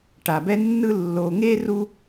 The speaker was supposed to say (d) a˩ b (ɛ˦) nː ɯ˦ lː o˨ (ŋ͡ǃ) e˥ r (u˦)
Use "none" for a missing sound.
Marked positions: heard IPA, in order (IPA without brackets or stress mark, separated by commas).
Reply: ʈ, ɛ˦, ŋ, u˦